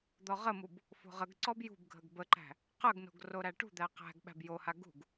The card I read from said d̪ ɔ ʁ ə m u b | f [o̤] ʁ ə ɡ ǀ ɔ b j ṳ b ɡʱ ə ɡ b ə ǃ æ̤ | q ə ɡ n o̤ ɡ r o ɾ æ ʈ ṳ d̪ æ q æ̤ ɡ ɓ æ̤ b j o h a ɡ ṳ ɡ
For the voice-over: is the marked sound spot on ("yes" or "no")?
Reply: yes